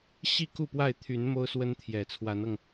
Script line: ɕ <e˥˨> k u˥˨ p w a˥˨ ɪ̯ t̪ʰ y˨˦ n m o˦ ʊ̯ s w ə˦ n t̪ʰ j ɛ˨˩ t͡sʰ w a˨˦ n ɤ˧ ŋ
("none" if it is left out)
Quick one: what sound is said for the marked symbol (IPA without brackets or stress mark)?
i˥˨